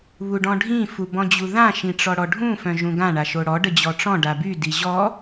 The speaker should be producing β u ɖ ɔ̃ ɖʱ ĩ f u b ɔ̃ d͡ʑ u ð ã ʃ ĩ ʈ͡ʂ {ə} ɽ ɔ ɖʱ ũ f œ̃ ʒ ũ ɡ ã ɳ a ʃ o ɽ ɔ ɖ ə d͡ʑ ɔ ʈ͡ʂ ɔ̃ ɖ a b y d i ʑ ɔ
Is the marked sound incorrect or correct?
incorrect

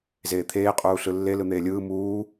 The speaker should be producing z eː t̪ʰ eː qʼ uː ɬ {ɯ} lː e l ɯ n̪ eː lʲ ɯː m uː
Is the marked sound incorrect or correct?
correct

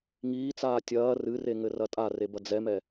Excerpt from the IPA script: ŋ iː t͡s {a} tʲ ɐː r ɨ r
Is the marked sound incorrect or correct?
incorrect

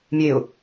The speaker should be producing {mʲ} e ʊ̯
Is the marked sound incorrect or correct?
correct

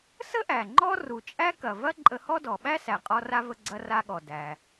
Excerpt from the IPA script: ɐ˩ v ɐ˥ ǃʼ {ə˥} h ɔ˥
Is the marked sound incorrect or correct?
incorrect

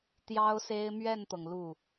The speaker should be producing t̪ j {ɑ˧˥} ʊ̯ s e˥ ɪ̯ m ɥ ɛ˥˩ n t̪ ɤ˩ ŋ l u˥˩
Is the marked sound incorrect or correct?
incorrect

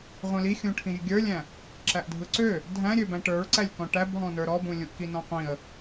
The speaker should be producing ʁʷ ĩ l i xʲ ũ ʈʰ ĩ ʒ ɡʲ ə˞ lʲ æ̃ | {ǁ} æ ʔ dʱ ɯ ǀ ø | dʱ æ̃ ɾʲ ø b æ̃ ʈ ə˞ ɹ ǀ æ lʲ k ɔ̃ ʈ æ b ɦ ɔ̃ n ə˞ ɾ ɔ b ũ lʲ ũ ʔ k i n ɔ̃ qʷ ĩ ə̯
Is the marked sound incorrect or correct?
correct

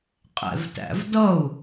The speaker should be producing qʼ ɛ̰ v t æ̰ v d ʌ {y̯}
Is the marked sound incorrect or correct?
incorrect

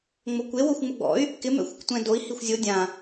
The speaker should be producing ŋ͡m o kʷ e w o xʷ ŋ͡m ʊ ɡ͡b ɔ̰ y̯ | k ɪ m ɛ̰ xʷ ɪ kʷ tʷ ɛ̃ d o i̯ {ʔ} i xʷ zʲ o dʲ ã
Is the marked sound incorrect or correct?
incorrect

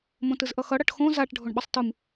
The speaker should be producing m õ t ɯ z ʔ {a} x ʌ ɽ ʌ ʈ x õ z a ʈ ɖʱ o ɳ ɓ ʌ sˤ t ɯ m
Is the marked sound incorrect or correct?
incorrect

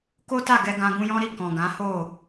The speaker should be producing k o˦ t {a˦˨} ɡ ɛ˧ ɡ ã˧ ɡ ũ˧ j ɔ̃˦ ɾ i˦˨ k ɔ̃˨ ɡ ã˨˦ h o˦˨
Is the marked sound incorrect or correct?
correct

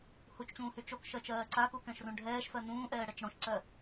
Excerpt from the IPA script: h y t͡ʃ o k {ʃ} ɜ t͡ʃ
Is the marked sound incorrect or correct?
correct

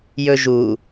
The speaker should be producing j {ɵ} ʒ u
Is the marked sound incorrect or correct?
correct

